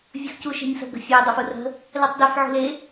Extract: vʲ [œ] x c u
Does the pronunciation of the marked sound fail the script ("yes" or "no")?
yes